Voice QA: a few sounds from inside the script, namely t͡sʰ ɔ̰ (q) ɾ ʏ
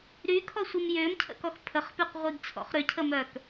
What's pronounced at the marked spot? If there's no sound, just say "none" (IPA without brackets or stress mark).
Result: χ